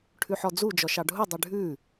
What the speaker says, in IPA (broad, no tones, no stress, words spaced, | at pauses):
ʈʰʉħɔd͡zu d͡ʒɔʃɑɖʱudˤy ɖʱʉ